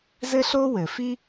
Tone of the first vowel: high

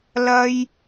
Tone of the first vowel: high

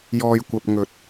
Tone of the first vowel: low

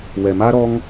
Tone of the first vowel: low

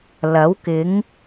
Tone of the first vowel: rising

